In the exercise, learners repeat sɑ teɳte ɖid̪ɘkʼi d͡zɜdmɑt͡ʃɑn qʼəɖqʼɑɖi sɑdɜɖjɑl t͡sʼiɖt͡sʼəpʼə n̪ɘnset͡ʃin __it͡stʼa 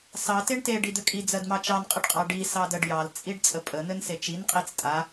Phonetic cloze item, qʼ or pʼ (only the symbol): qʼ